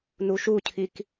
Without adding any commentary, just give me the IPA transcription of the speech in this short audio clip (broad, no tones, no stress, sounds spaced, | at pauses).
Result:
n u ʃ u cʰ i k